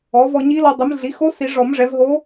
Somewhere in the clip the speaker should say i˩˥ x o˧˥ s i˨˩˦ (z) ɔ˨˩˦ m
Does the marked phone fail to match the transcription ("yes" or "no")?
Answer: yes